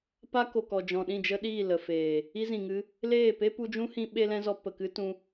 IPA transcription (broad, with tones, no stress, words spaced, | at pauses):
pa˦ko˨kɔ˨ d͡ʒɔ̃˨ɗĩ˦˨d͡ʒə˦ɗiː˦˨ lə˨feː˨ | i˧zĩ˨ŋɨ˧ | leː˦˨pe˦pu˧ d͡ʒũ˦hĩ˧ ɓe˦lɛ̃˦zɔ˧ pə˨kɨ˦ tũ˦